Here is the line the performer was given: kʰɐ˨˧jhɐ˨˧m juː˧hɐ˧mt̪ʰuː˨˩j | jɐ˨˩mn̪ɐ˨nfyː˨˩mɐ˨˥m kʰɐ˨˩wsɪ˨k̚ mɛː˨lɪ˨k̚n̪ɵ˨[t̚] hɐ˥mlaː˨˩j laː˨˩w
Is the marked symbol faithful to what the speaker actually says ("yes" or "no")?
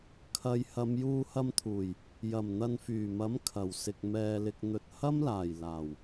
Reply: yes